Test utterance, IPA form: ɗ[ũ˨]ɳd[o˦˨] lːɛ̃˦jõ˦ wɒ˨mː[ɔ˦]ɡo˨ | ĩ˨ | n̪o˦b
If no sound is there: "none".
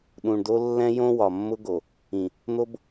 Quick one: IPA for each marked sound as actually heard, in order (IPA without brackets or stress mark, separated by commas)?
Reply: ũ˨, o˦, ʊ˦